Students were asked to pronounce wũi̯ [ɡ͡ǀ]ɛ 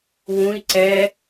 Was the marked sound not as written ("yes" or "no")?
yes